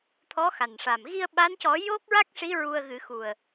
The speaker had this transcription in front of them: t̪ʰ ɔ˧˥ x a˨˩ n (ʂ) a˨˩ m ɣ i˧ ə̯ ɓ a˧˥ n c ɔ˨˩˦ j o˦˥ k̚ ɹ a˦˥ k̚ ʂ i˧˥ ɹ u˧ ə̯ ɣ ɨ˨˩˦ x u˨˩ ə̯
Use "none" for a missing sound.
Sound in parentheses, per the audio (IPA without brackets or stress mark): ʂ